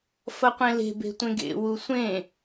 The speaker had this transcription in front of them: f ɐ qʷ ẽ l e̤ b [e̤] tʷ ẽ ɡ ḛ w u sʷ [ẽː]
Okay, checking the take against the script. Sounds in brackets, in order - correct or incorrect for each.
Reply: correct, incorrect

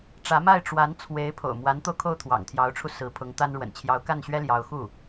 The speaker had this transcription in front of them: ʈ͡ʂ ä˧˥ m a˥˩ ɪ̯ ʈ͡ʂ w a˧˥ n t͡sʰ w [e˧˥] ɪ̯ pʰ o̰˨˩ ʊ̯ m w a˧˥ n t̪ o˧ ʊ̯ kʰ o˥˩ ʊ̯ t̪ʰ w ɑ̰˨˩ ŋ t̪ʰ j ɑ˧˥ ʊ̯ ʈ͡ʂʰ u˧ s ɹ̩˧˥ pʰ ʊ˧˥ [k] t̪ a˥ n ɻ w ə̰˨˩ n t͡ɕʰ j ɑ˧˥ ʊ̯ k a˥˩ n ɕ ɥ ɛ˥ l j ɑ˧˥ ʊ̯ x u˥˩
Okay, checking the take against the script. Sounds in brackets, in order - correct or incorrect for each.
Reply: correct, incorrect

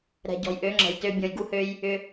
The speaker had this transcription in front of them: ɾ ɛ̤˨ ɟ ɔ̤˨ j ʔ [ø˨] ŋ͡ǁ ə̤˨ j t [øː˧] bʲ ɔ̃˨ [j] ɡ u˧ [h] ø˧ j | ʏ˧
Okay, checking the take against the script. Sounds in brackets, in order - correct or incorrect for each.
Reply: incorrect, incorrect, correct, correct

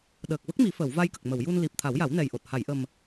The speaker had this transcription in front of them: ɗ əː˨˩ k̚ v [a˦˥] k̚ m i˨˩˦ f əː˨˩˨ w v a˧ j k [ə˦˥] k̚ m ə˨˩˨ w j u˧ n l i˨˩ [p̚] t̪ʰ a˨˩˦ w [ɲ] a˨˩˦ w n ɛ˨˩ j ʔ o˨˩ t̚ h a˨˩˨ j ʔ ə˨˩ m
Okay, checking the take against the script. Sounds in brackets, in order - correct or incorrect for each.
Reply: incorrect, incorrect, correct, incorrect

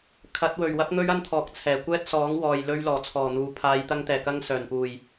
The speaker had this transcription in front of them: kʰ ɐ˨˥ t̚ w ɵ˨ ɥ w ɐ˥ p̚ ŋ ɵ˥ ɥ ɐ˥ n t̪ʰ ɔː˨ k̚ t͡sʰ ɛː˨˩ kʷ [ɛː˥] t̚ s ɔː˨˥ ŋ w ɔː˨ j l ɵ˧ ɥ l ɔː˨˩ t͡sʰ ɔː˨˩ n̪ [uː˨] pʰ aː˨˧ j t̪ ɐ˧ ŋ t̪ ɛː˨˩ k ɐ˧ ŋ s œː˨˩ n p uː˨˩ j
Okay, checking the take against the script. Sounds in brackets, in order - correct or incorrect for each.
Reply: correct, incorrect

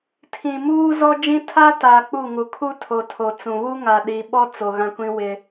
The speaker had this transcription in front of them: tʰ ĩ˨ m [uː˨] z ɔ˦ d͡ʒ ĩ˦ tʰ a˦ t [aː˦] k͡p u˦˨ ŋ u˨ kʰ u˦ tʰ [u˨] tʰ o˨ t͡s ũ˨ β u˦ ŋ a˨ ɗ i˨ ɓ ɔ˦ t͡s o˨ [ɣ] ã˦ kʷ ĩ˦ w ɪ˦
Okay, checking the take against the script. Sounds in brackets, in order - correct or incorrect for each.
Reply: incorrect, incorrect, incorrect, correct

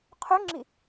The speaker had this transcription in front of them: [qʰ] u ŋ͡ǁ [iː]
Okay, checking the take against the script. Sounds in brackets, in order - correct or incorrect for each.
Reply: correct, incorrect

